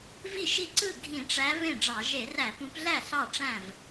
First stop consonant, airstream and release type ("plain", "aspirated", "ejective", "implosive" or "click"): click